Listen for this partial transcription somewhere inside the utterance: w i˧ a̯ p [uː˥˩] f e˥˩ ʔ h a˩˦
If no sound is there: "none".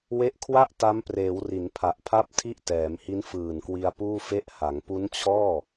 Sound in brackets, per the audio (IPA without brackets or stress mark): uː˥˩